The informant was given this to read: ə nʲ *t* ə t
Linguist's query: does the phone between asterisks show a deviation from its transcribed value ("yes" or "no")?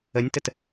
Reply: no